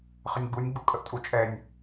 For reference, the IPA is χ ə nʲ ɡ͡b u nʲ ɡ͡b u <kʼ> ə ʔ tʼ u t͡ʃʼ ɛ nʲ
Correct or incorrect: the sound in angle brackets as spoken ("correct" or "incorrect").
correct